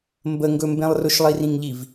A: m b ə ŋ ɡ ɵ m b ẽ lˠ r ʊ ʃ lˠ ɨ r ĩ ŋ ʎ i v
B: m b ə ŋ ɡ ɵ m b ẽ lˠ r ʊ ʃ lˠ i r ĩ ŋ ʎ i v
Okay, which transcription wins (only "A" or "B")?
B